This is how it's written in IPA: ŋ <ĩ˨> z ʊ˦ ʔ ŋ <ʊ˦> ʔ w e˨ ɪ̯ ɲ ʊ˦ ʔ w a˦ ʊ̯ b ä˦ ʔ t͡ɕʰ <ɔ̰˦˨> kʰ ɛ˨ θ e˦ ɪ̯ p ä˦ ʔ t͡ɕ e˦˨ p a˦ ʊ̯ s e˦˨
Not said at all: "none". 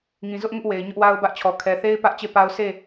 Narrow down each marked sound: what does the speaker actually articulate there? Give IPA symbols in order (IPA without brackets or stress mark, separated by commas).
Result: ĩ˨, ʊ˦, ɔ˨